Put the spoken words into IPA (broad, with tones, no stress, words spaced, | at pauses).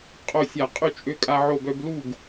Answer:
qʼo˧˩sʲa˧˩˧ qʼy˧t͡ʃʼø˧kʼa˧ ʕo˧˩bœ˧blu˥˩ɡ